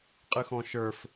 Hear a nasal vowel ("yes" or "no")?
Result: yes